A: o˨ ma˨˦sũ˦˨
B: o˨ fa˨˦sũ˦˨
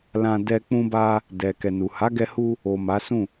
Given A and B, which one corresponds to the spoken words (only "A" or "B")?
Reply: A